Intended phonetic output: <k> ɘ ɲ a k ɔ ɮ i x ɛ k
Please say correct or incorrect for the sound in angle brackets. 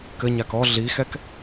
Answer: correct